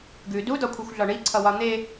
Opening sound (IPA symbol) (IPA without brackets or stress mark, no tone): ɡ